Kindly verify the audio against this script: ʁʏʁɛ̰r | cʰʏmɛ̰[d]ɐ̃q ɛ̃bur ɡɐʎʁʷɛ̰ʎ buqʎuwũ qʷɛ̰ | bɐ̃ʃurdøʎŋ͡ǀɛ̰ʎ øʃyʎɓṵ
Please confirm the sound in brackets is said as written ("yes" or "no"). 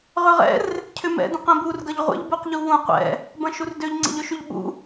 yes